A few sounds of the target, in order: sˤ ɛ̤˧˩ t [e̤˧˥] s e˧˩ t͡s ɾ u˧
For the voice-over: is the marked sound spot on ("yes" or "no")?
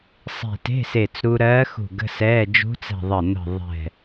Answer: no